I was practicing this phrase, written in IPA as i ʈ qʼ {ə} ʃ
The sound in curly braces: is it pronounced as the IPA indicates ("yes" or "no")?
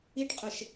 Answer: yes